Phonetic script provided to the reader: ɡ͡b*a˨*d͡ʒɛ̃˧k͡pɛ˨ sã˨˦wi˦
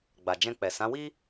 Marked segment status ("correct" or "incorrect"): correct